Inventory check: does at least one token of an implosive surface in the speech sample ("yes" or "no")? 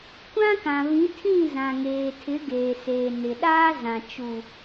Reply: yes